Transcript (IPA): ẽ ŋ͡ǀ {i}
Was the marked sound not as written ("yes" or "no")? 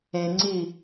no